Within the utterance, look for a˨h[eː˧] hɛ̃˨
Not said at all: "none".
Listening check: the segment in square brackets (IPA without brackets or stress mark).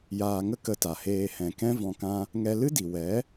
eː˧